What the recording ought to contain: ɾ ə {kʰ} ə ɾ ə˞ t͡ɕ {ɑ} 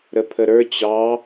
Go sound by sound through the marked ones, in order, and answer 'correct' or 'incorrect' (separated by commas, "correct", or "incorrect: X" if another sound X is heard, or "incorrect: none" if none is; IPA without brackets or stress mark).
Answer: incorrect: pʰ, correct